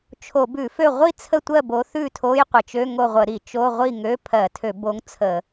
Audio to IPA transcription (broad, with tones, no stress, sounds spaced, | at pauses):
t͡ʃʰ o˧˩˧ b ʉ˧˩˧ f ø˥˨ ʁʷ i˥˨ t͡sʰ ə˥˨ tʷ ɜ˥˨ b o˨˦ θ ʉ˥˨ tʰ o˧˥˧ j qʷ ə˧˩˧ t͡ʃ ø˧˥˧ ŋ o˥˨ ʁʷ ə˧˩˧ ɾ i˧˩˧ t͡ʃ o˧˥˧ ʁʷ i˥˨ ŋ ø˧˥˧ pʰ ɜ˧˩˧ tʰ ø˧˩˧ b o˨˦ ŋ t͡sʰ ə˧˩˧